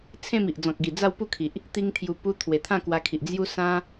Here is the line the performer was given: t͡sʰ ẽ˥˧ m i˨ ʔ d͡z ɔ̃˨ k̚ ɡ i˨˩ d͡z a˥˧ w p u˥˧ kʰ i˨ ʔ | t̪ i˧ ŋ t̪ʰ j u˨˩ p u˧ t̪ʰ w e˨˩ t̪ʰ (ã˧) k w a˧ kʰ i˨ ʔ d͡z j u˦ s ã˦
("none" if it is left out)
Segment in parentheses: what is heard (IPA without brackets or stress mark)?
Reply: ã˥˧